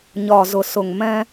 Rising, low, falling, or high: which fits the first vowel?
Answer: low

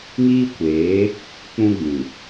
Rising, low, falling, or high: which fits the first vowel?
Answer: high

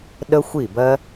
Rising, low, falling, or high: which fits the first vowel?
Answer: high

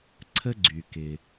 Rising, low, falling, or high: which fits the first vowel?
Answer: high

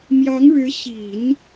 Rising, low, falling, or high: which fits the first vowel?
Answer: rising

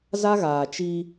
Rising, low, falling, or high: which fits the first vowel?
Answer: high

